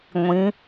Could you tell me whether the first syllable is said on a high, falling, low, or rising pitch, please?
rising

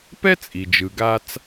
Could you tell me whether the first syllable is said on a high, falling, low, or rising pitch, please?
high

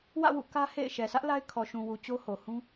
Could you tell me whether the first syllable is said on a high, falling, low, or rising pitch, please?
falling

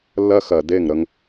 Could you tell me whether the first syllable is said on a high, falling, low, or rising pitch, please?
high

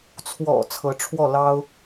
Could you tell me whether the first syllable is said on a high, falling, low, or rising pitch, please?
low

